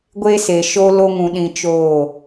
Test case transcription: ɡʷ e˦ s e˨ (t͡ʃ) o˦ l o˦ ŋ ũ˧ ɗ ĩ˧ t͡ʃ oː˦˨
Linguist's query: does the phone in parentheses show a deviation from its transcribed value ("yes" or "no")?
yes